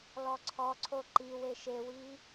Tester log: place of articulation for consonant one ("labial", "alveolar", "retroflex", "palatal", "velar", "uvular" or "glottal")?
alveolar